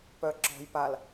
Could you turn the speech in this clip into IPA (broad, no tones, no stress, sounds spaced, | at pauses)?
p œ ǁ ɔ̤ j p a l